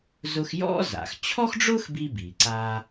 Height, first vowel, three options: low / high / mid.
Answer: high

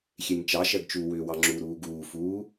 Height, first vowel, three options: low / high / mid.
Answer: mid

